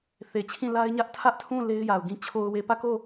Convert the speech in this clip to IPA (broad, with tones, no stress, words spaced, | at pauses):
θe˨t͡ɕʰĩ˦˨ la˦ɪ̯ɲä˦ʔ tʰä˦ʔtʰũ˦˨ le˦ɪ̯ja˨ʊ̯ɡĩ˦ t͡ɕʰo˨ʊ̯we˨pä˦˨ko˦˨